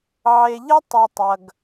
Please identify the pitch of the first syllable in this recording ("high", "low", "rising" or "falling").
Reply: low